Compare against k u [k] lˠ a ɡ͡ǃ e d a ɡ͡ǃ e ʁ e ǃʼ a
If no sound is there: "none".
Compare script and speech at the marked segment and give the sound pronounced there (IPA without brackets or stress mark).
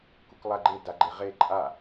k